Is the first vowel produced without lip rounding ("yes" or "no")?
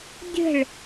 yes